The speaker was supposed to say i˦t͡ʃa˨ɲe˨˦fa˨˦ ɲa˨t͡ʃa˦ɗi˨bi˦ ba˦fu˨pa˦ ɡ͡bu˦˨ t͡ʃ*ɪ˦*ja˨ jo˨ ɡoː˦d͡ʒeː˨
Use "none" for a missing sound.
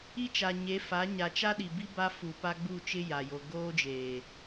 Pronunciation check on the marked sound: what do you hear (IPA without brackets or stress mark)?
ɪ˦